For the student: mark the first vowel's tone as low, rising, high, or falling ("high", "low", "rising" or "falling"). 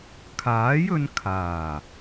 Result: rising